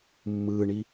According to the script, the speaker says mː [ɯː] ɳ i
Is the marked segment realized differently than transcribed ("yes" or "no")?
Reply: no